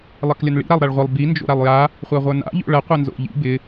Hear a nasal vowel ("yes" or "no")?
no